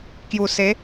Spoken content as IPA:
k j u˨˩ s e˨˦

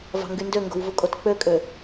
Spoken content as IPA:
v ɑ̤ ŋ ɡ y n d ø ŋ ɡ o̤ w v u kʼ o t k͡p ø kʼ ø

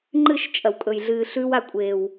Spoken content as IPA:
ŋ͡ǃ ɨ˦˨ ʃ t͡ʃʼ ɐ˨ w kʼ ɵ˨ j ɮ ɨː˨ ɬ ʉ˧ w a˧ kʷʼ eː˨ w

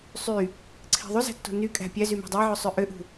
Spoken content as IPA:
sˤ y | ǀʰ i̤ ðˤ y z æ̤ tː o̤ n y kʼ æ̤ pʲ æ z y m æ̤ dˤ æ ʕ ø sˤ ø ʔ ø ʔ ṳ

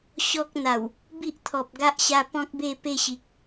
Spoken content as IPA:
ɕ ɔ˦ k̚ n̪ a˨˩ w | b i˦ ʔ t̪ʰ ɔ˨ p̚ ɡ a˦ ʔ ɕ a˧ p ɔ̃˦ k̚ b e˥˧ p e˥˧ ɕ i˨ k̚

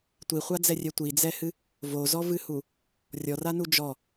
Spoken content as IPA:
tʷ i χʷ a d͡z ɛ rʲ ɛ tʷ i d͡z ɛ h ɨ | v o z ɔ v ɨ h u | rʲ ɔ r a n u d͡ʒ ɔ

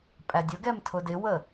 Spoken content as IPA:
pʼ æ dʲ ʊ ɡ ɛ m tʰ ʊ d ɪ w ə

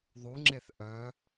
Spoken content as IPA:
ðˤ u ŋ͡ǁ e θ ʔ œ

